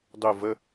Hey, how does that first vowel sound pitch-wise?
falling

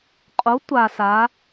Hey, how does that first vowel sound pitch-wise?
rising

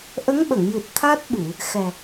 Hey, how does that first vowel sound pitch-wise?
rising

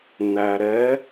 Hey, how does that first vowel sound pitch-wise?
low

